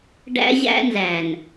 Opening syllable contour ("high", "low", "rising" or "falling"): high